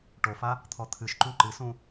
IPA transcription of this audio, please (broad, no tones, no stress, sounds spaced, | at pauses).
ʈ o f a | t̪ʰ ɔ t̪ʰ ɨ ʃ ǃ ũ ǃ ɨ s ũ